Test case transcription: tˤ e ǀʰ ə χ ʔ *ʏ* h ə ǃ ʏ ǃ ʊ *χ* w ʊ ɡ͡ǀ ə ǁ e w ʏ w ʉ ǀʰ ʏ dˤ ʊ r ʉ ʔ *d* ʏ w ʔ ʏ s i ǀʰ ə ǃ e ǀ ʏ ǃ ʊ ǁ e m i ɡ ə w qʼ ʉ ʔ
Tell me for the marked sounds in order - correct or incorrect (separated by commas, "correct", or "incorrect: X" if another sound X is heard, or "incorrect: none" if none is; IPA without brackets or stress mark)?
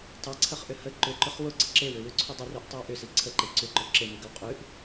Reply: correct, correct, incorrect: tˤ